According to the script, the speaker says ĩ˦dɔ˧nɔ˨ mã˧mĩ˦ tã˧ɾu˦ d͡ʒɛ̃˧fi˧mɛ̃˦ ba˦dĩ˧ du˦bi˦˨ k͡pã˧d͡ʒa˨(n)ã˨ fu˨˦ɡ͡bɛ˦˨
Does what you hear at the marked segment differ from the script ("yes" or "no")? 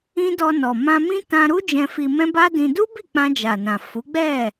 no